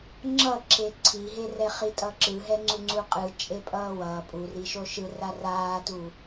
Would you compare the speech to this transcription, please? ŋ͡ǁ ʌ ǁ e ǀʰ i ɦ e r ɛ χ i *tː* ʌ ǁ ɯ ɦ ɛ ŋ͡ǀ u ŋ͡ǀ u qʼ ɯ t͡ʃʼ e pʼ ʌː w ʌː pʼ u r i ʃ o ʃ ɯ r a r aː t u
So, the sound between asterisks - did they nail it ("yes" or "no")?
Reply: no